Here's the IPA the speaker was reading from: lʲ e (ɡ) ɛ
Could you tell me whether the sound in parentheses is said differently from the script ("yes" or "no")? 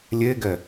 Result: no